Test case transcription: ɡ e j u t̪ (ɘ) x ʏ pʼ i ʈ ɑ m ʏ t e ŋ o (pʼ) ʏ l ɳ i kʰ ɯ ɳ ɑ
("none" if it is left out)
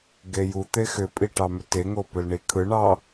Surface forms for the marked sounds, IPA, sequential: e, p

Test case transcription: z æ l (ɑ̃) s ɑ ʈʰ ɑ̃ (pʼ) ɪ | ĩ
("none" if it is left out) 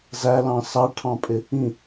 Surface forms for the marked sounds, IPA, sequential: ɑ̃, pʼ

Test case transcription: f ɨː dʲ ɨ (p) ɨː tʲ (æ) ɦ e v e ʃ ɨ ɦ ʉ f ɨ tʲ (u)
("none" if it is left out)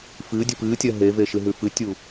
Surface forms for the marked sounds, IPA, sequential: p, ɜ, u

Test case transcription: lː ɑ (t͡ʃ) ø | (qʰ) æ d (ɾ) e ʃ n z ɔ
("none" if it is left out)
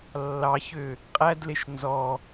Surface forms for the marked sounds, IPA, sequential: ç, qʼ, l

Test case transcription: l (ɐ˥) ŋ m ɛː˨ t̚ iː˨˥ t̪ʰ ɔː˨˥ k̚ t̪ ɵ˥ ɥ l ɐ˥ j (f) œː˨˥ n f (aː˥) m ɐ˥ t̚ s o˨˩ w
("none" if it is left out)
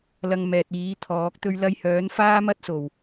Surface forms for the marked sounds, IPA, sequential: ɐ˧, h, aː˥

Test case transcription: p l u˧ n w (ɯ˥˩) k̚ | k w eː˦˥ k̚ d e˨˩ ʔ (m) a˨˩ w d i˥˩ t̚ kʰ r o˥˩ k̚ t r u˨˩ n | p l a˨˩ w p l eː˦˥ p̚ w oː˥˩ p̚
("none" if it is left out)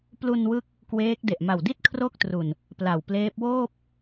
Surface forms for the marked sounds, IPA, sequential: ɯ˦˥, m

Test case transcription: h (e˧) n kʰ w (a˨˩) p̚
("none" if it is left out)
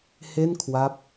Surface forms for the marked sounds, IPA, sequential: e˥˩, a˦˥

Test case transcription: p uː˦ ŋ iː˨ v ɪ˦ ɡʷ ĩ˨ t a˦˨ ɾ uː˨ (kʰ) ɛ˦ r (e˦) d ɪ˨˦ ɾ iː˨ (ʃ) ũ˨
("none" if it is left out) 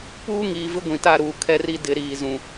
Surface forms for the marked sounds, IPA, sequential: kʰ, i˦, z

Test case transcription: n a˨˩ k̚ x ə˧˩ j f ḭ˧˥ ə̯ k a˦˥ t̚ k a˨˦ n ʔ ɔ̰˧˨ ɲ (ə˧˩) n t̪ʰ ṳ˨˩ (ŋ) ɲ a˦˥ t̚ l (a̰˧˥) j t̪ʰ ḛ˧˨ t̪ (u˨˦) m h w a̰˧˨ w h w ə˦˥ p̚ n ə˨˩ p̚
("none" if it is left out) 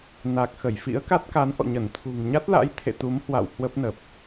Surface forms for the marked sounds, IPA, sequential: ə˧˩, ŋ, a̰˧˥, u˨˦

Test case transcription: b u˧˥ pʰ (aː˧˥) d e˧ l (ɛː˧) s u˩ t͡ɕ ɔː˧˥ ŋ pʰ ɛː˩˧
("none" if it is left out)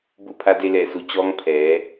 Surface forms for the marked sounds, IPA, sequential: a˧˥, ɛː˧˩

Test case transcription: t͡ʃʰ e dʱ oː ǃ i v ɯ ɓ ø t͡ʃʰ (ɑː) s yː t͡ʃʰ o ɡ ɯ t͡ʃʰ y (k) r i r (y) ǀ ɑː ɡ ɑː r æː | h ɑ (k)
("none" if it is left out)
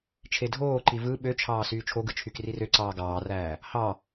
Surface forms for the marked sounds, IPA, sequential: ɑː, k, ø, none

